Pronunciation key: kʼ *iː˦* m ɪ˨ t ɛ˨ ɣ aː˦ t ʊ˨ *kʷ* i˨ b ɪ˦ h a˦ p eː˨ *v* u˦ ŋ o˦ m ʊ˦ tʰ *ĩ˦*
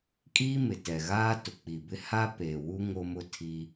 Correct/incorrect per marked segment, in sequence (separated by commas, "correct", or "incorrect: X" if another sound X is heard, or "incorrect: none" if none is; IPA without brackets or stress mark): correct, incorrect: k͡p, incorrect: w, incorrect: i˦